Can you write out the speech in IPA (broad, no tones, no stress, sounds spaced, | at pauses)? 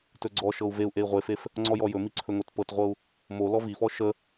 t ɵ ɡ͡ǀ ɔ ʃ ɤ u̯ v e u̯ ʔ e i̯ ʁʷ e f e f | ŋ͡ǀ ɔ j ɔ j ɵ m i ǀʰ ɵ ŋ o t p ɤ t ʁʷ ɤ u̯ | m o l ɔ v i f ɔ ʃ ə